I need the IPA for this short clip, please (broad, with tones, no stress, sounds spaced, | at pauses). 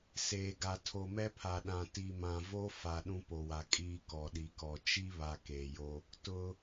s eː˨ ɡ a˨ tʰ o˨ m ɛ˦ pʰ a˨ ɗ ã˨ t i˨ m ã˨ v o˦ f a˨ ɗ ũ˦ p o˨ w a˨ kʼ iː˦ k ɔ˨ ɗ i˨ k ɔ˨ t͡ʃ i˦ β a˨ k eː˨ j o˦ | t ʊ˦